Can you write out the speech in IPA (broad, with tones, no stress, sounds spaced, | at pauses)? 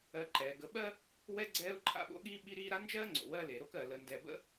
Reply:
ɜ˨ ǃ ɛː˩ ɡ ə˨ ɓ ɜ˥ | w ɛ˦ ɡ͡ǀ ɛː˦ ʊ̯ ǃʰ a̰˦ ɓ o̰˥ ɠ iː˥ ɓ i˦ ɾ iː˦ ɾ a˥ n d͡ʒ ɜː˥ ŋ͡ǀ o̰˩ w ɜ˦ l e˩ ɾ o˥ k ɜ˩ l ə˨ n d ɛ˨ b ə̰˥